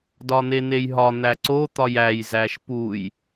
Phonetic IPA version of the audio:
d ɒ n̪ e n̪ e j ɦ ɒ n̪ æ ǀ o t̪ ɒ j æ j z æ ʃ p u j

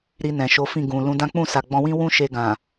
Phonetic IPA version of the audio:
ɾ i˧ n ɛ̃˨ ʃ o˨˦ f ĩ˦˨ ɡ ũ˨ l ũ˨˦ d ã˦ k͡p ũ˦˨ s a˨ ɡ͡b ɔ̃˧ w ĩ˦ w ũ˦ ʃ e˧ ɡ ã˨

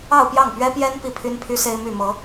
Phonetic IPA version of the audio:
ɑ˥˧ ʊ̯ p j ɑ˥˩ ŋ p ɥ ɛ˥ p j ɛ˥ n p i˥˩ pʰ y˥ n pʰ y˥ s e˥ ɪ̯ m y˥˩ m ɤ˧˥

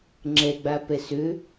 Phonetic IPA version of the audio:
ŋ͡ǁ ɛ ɡ͡b a p ɛ s ø

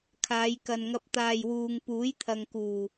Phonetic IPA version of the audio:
kʰ aː˨˧ j k ɐ˨ n ŋ ɐ˧ p̚ t̪ aː˨ j w uː˨ ŋ p uː˨˥ j t̪ʰ ɐ˨ ŋ k uː˨˩

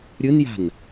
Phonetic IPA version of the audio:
ɾʲ ɯ n j a̤ n

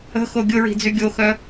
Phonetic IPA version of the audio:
ə̤ x o ɡʲ ʊ ɹ i̤ d͡z y ɡʲ o x œ

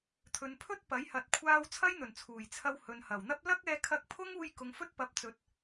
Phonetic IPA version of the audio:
t̪ʰ ɵ˨ n pʰ ɵ˥ t̚ p ɐ˨˥ j h ɐ˨ t̚ kʷʰ aː˧ w t͡sʰ ɐ˥ j n̪ ɵ˨˩ n t͡sʰ uː˨˩ j t͡sʰ ɐ˧ w h ɵ˨ n h ɐ˨˩ w n̪ ɐ˥ p̚ l ɐ˥ k̚ ɛː˧ kʰ ɐ˧ k̚ pʰ ʊ˥ ŋ uː˧ j k ʊ˨ ŋ f ɵ˥ t̚ p ɐ˨˥ p̚ t͡s ɵ˨ t̚

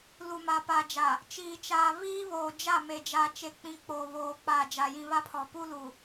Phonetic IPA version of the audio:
l u˨ m a˨ p a˨ d͡ʒ a˨ | t͡ʃ iː˨ t͡ʃ aː˨ β iː˦ β oː˨ d͡ʒ a˦˨ m e˨ d͡ʒ a˨ t͡ʃ e˨ k͡p ĩ˨ k͡p oː˨ β oː˨ k͡p aː˨ d͡ʒ a˨ j ĩ˨ β a˦ pʰ ɔ˨ p u˦ l u˨

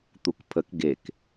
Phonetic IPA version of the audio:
t̪ u k pʰ ə k ɡ e k

